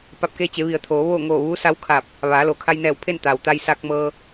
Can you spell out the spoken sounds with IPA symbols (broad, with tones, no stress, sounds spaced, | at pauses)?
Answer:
p a˧˩ p̚ k e˧ t͡ɕ e˩˧ ʋ i˩ ə̯ t̪ʰ oː˩˧ ʋ oː˥˨ ŋ oː˧˩ ʋ uː˧˥ s a˧˥ w kʰ a˧˩ p̚ | ʋ aː˩˧ l o˩˧ kʰ a˧ j n ɛː˧˩ w pʰ e˥˨ n t̪ aː˩ w t̪ a˧ j s a˧ k̚ m ɤː˧